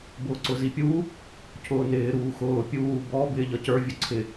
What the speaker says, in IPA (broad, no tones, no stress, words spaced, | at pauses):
bʊːǀʊzipʲuː | cʰʊːnɪː ɾuːxʊː pʲuː bɔ bɪːʎʌcə˞ vʲʊǀʰɪ